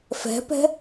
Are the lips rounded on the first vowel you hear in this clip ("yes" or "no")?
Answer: no